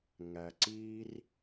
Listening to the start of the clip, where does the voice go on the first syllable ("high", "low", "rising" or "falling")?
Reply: low